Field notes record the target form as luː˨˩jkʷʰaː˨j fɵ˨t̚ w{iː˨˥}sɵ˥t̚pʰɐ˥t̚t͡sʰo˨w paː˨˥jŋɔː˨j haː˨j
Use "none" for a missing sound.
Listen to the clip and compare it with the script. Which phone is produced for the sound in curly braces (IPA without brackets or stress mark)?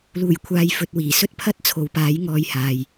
iː˨˩